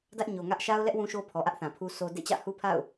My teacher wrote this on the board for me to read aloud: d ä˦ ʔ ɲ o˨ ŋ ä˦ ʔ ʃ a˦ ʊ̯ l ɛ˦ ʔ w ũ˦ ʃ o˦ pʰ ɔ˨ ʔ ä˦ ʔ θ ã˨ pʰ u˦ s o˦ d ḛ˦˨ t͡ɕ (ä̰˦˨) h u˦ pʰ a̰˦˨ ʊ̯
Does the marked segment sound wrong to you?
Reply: no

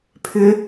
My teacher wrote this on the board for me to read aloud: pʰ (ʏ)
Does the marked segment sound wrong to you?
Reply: no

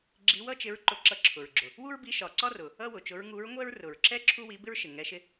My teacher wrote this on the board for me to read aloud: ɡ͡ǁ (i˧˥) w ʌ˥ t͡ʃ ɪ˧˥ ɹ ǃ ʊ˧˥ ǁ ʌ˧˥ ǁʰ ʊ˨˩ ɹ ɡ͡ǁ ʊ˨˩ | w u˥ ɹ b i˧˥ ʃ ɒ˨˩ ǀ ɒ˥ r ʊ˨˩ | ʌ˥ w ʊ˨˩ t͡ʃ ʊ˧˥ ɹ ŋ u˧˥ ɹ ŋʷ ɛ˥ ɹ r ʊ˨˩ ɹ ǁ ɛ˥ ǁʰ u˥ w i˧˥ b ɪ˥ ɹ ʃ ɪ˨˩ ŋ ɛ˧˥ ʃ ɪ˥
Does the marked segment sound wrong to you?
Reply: no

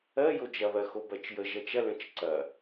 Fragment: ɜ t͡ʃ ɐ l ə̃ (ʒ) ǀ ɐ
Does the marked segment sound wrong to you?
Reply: yes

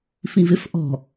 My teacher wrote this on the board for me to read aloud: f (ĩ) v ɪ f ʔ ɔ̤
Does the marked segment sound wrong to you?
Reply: no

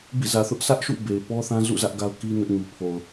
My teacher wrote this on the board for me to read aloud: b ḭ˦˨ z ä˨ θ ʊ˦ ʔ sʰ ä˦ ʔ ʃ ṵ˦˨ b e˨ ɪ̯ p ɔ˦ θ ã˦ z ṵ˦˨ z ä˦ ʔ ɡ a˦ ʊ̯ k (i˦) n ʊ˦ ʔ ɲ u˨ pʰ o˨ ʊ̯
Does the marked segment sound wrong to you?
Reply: no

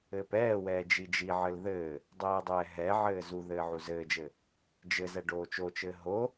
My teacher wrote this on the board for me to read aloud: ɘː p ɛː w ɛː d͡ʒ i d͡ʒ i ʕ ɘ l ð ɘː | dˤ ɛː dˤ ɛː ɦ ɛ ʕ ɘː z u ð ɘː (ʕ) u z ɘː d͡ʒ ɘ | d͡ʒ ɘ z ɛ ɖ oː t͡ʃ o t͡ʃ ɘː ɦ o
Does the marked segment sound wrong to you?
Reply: no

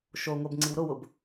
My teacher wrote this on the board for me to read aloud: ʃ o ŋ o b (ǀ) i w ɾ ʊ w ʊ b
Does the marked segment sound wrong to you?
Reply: yes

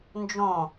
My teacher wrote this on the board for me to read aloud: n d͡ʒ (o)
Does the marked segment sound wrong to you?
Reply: yes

